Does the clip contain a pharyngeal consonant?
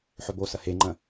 yes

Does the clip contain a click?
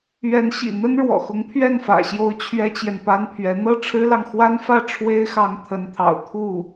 no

